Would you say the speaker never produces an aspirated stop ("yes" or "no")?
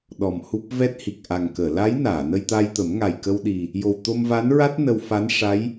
yes